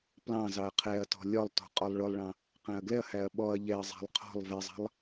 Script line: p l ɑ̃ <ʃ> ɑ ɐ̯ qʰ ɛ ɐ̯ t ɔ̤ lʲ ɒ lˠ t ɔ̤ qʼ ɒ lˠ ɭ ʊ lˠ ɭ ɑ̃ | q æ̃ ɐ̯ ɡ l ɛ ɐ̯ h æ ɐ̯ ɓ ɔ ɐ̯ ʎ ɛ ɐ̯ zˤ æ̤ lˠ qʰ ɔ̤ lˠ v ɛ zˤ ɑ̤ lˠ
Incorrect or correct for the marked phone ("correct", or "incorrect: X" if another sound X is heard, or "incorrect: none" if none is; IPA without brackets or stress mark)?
incorrect: z